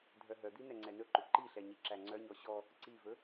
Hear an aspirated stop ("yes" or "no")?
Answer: no